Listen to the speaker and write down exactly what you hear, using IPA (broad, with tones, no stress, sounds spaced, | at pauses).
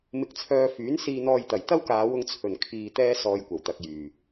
m ɪ˧ k̚ t͡sʰ œː˧ f yː˨˥ n s iː˧ n̪ ɔː˧ j t̪ ɐ˨˩ j t̪ ɐ˥ w k aː˨˧ w ʊ˧ ŋ t͡sʰ ɵ˨˩ n kʰ iː˧ t̪ ɛː˥ s ɔː˧ j kʷ ɐ˨˩ w t̪ ɐ˨ k̚ j yː˨˩